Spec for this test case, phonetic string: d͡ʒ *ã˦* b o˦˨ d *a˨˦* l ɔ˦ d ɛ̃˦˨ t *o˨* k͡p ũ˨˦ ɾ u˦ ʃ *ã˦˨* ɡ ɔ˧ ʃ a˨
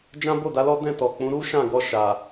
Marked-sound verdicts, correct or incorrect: correct, correct, incorrect: ɔ˨, correct

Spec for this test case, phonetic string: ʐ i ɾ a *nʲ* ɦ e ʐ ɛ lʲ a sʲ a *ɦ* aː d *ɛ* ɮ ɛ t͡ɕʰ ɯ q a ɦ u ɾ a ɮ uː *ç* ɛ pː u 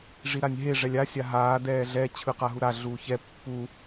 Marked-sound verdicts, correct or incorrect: correct, correct, incorrect: ɛː, correct

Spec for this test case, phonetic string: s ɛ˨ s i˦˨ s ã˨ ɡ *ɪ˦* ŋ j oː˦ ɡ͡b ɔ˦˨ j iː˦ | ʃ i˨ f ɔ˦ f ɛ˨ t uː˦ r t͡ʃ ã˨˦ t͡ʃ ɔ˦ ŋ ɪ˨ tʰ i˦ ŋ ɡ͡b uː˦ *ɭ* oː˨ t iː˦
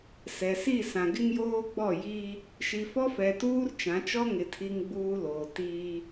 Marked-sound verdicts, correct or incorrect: correct, incorrect: l

